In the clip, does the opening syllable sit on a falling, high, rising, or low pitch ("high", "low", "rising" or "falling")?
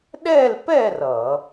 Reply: falling